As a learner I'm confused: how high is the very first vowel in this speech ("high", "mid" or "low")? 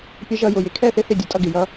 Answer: mid